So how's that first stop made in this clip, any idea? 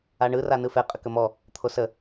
ejective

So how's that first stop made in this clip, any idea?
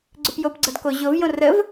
click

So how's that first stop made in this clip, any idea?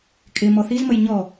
ejective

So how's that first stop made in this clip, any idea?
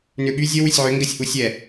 implosive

